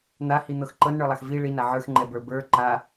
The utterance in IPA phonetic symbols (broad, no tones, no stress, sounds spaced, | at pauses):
n̪ a h i n̪ ɤ x ǃ ɤ n ɳ ə˞ lˠ a x v i ɭ i n a ʕ ə˞ x ŋ͡ǃ ɛ b ə˞ b ə˞ ǃ a